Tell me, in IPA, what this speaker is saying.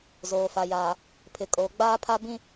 z oː˨ f a˨ j aː˨ | pʰ ɪ˨ kʼ oː˨ ɡ͡b aː˦ pʰ a˦ b ĩ˦

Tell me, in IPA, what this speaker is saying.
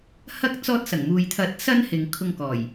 h ɐ˥ k̚ t͡s ɔː˧ t̚ s ɐ˨˩ ŋ m uː˨ j t̪ʰ ɐ˨˥ t̚ s ɐ˥ n h ɪ˨ ŋ kʰ ʊ˧ ŋ k ɔː˨˩ j

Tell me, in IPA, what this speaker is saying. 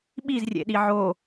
ɓ i z rʲ ḛ ɗ i ʕ o

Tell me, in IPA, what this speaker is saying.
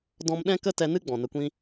d ɔ̃˧ m ɗ ɛ̃˦ k ə˦ t ɛ˧ n ɨ˦ ɡ͡b ɔ̃˨ n ə˧ kʷ ĩ˦

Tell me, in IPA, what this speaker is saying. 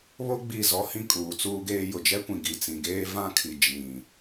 β o˦ ɡ͡b i˦˨ z ɔ˦ h ĩ˦ kʼ uː˨ t͡s uː˦ ɡ eː˦ j ʊ˨ d͡ʒ ɛ˦ kʷ ĩ˨ ɡ i˨ t͡s ĩ˨ ɡ eː˦ v ã˦ kʰ i˨ d͡ʒ ĩ˨

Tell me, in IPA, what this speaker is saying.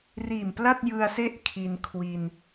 r iː˨˩ m p l a˥˩ t̚ j ɯ˧ a̯ s e˥˩ ʔ kʰ i˧ n kʰ w i˧ n

